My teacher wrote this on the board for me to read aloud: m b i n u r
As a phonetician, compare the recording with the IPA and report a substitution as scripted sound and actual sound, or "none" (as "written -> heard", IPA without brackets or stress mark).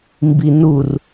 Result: none